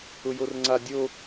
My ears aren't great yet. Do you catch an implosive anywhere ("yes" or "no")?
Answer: no